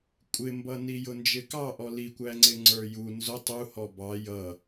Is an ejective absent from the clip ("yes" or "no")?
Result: no